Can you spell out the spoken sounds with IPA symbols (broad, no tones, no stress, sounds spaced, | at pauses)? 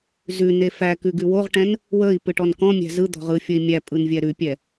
z ʉ n e f æ k ʉ ɡ ʉ w o ʁ ʈ ɛ̃ n | w ə i̯ p ɯ ʈ ɔ n k ɔ̃ mʲ æ̤ z ɯ d̪ ɔ̤ ʁ ɯ fʲ ə i̯ mʲ æ pʼ ɯ n vʲ ɛ ɾ ʉ pʲ ɛ